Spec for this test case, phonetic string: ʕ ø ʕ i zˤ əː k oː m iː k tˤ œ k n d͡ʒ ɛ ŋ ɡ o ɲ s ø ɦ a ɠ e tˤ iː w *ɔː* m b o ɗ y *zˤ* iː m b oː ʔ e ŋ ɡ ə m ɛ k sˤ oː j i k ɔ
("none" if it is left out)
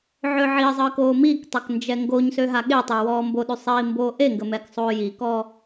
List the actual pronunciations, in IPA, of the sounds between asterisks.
ɔː, sˤ

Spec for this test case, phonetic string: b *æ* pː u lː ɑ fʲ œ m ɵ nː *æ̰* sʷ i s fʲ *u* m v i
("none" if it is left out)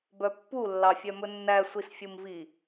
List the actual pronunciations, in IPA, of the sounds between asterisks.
œ, æ, u

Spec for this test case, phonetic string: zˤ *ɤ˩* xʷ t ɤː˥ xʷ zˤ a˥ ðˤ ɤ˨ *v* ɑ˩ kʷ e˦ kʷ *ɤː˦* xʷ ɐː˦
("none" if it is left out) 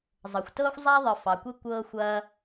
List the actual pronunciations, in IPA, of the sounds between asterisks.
ɤ˩, f, ɤː˦

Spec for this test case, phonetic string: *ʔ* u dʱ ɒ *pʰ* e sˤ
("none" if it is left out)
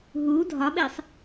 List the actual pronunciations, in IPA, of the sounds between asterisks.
ɦ, ɓ

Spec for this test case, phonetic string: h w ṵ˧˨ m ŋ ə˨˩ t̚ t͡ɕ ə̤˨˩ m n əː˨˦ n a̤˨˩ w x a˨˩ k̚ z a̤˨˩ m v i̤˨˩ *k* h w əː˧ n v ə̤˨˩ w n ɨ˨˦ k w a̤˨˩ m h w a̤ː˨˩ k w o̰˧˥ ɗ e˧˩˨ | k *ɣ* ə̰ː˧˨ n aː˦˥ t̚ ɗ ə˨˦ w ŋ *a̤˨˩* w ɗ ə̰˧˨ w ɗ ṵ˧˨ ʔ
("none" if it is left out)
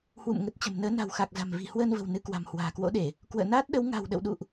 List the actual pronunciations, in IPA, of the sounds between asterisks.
none, w, a̤˨˩

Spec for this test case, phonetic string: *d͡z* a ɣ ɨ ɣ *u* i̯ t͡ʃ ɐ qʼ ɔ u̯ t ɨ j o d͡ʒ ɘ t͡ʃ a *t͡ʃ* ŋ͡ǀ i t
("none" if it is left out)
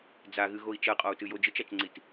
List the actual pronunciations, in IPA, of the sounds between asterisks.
d͡z, o, t͡ʃ

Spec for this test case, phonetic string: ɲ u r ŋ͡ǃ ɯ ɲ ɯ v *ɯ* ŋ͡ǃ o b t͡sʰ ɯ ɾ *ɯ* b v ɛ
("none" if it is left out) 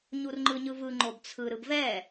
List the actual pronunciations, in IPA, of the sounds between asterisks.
ɯ, ɯ

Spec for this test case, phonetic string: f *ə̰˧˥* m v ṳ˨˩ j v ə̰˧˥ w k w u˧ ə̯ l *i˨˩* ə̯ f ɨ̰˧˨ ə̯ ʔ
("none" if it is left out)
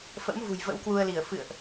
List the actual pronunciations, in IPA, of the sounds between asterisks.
ə̰˧˥, i˧˩

